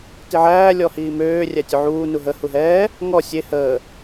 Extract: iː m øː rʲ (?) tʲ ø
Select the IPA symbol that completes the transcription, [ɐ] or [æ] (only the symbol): æ